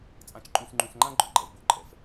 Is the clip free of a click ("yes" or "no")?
no